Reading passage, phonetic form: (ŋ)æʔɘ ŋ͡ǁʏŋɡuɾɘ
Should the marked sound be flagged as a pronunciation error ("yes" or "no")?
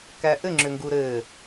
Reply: yes